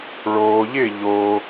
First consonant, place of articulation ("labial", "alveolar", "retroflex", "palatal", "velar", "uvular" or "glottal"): retroflex